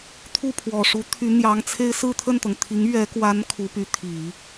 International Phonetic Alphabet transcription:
t̪ʰ u˥˩ pʰ w ɔ˨˩ ʂ u˧˥ t̪ʰ y˧˥ n̪ j ɑ˧˥ ŋ t͡sʰ e˥ ɪ̯ s ɹ̩˥˧ t̪ʰ ə˥˩ n t̪ ɤ˩ ŋ t̪ʰ i˧˥ ŋ ɥ ɛ˧˥ k w a˧˥ n kʰ u˧˥ p y˧˥ t̪ʰ i˨˩˦

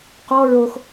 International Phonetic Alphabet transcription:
q ɔ ɹ o x

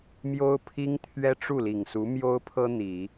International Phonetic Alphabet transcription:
m j o˥ ʊ̯ pʰ i˥ ŋ t̪ʰ ɥ ɛ˥ ʈ͡ʂ u˥˩ l i˨˩ ŋ s u˧˥ m j o˥ ʊ̯ pʰ ɤ˥ n̪ i˨˩˦

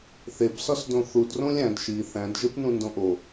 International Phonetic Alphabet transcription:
θ e b s ɒ s d õ θ u d r õ lʲ æ̃ d ʃ i θ æ̃ d ʒ e p n ũ n d õ ʔ o

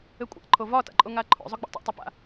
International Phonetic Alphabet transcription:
ɘ kʷʼ a̰ ǃʰ o v ɒ t a̰ ǃʼ o ŋ a ǃʰ o̰ zˤ ʊ ɡ͡b a̰ tˤ o̰ tˤ ɛ p a̰

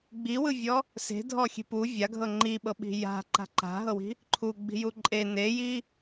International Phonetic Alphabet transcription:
ɡ͡b i w ɯ vʲ ɔ | s e̤ dʱ ɔ xʲ e̤ p u vʲ a ɡʱ ɤ ŋ͡ǃ i ɓ ɤ ɓ i̤ j a̤ ǃ a̤ ǃ a̤ ɦ ɤ w i̤ | ǃʰ u ɡ͡b i̤ j u ǃʼ e n e j i

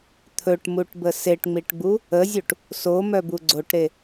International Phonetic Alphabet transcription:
t̪ʰ ɵ ʈ m u ʈ b ə s e ʈ ŋ͡m i ʈ ɡ͡b u | ə zʲ u ʈ | s o m œ b u ɡ͡ǀ o ʈ ɾ e

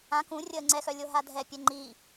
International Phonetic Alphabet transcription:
ã k ũ rʲ əː ŋ͡ǀ ɛ x œ lʲ o ɦ a dʱ ɛ pʲ ɛ ŋ͡ǃ i

